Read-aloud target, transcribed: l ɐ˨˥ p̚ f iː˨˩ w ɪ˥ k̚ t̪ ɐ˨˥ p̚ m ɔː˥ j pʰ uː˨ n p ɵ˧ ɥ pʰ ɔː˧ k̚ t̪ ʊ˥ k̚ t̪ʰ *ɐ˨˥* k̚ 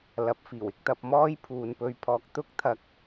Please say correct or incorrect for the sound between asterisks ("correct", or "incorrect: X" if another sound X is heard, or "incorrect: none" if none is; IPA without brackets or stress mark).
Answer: incorrect: ɐ˧